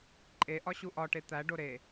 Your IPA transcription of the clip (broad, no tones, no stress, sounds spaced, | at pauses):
ǃʼ e ʔ ɒ ɕ u ʔ ɒ ʈ e t̪ æ ɖ o ɾ e